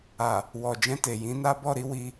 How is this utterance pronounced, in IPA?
a˨ | w ɔ˨ d͡ʒ ɛ̃˧ t e˨ j ĩ˨˦ n a˦ b ɔ˦˨ ɾ i˨˦ w i˧

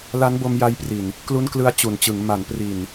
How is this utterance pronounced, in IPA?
l a˦˥ n b o˧ m j a˧ j p r i˨˩ n | k l u˦˥ n k l ɯ˦˥ a̯ t͡ɕ u˨˩ n t͡ɕ ɯ˩˦ ŋ m a˩˦ n p r i˨˩ n

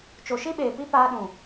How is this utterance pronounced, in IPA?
t͡ʃ o˨ ʃ i˦ ɓ eː˨ p i˦ p aː˦ ɗ ũ˨

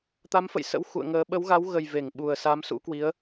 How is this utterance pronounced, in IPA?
t̪ a˨˦ m f ə̰˧˨ j s ə̰˧˥ w x ṵ˧˨ ə̯ ŋ əː˨˦ ɓ ə˨˦ w ɣ a˨˦ w ɣ ə˨˩ j v e˧˩ ŋ ɓ u˨˩ ə̯ s a˨˦ m s ṵ˧˥ k w i˨˦ ə̯

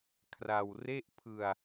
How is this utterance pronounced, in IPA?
kʰ r a˧ w r e˥˩ ʔ pʰ ɯ˧ a̯

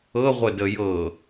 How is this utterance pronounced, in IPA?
ɤ ʁʷ ə d ə j ɤ

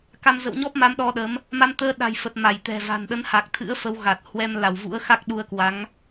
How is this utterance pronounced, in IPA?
k a˧ m z ə̰˧˨ w ɲ ɔ˦˥ p̚ m a˨˦ m ɗ ɔ˧ ɗ ə˨˦ m | m a˧ m t̪ əː˧ ɗ a̤˨˩ j f ə˨˩ t̚ m a˧˩ j t̪ ɛ̤˨˩ v a̤˨˩ n ɗ ə˨˦ n h a˨˩ k̚ t̪ʰ ɨ̰˧˥ ə̯ f ə˨˦ w ɣ a˨˩ t̚ h w ɛ˧ m l a˧˩ w v ṵ˧˥ ə̯ x a˦˥ k̚ ɗ u˧ ə̯ k w a˨˦ ŋ

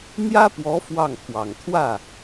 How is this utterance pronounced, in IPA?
n̪ j ä˥ p w ɔ˧˥ f w ɑ˥˩ ŋ pʰ w ɑ˨˩ ŋ t̪ʰ w ä˥˩

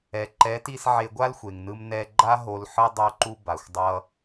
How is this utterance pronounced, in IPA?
ɛ˨ ǃ ɛ˨˦ t i˧ s ʕ e˧ ɡʷ a˦ l xʷ e˨ ŋ n ɯ˧ m n ɛ˧ ɡ͡ǃ a˦ ɦ o˦ l ħ ɯ˦ dˤ o˧ ǃ u˧ b a˨ xʷ dˤ ʌ˧

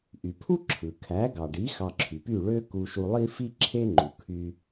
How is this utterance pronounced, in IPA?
ʔ y˩ pʰ u˥ ǁʰ ɯ˩ kʰ æ˩˥ ɡ ɑ˩ ɖ i˩˥ x ɑ˧ ǁʰ y˩ p y˥˩ ɭ ø˥ k u˧ ʃ u˧ lˠ i˥ f i˥ ǁʰ e˥ ŋ͡ǃ u˩ kʰ y˧

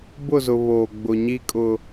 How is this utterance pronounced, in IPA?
b ʊ˦˨ z ʊ˨ β oː˨ ɡ͡b ʊ˨ ɲ i˦ kʼ ʊ˨

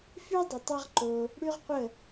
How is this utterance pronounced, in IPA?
f y˦ dˤ ə˨ tˤ ʌ˦ ʁ ǃ o˧ | ɽ y˦ ʁ qʷ ə˦˨

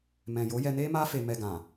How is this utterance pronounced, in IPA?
m ɛ̃˨ j o˨˦ j ɛ˧ n e˦ m a˦ f e˧ m ɛ˧ ɡ ã˨

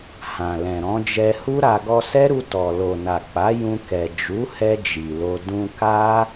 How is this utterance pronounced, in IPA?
h ã˨ l ɛ̃˨ ɾ ɔ̃˨˦ d͡ʒ ɛ˧ h u˦ ɾ a˧ ɡ ɔ˧ s ɛ˦ ɾ u˧ t ɔ˨ l o˨ n a˨ k͡p a˨˦ j ũ˧ k ɛ˨ d͡ʒ u˨˦ h ɛ˧ d͡ʒ i˨ l o˧ d ũ˧ k a˦

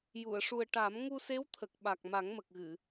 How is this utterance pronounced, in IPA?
j u˨˩˨ ə̯ ʂ u˨˩ ə̯ ʈ a˨˩˦ m ŋ u˧ s e˧˥ w t̪ʰ ə˨˩ k̚ ɓ a˨˩ k̚ m a˨˩˦ ŋ m ə˨˩ k̚ ɣ ɨ˨˩˨

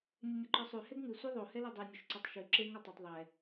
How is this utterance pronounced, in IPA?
nʲ ʉ nʲ o ǃ ɔ sˤ ʉ h ɛ ɡ ŋ ʉ sʷ ɛ ðˤ o h ɛ l ɛ dˤ ɛ nʲ o ʃ ǀ o tˤ ʃ ʉ ǁ e ŋ ɔ tˤ o tˤ ðˤ ɛ

